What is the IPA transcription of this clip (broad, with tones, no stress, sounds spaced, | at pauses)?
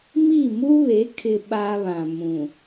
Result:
m i˦˨ m u˦ β e˨˦ kʰ ɪ˦ ɓ aː˦ β ã˨ m ũ˨